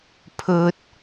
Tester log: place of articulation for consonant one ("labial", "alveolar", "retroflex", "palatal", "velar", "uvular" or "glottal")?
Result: labial